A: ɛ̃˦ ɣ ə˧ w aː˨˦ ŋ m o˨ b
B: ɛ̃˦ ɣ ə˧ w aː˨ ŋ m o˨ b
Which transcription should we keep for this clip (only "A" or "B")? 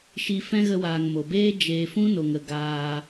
B